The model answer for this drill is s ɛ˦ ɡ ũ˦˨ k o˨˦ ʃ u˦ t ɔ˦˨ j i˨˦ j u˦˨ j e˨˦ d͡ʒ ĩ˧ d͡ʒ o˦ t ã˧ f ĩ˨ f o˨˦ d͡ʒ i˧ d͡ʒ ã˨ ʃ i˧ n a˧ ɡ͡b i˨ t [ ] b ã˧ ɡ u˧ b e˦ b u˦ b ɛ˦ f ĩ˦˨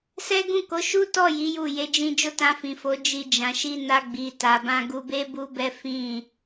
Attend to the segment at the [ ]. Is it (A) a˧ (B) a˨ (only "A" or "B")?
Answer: B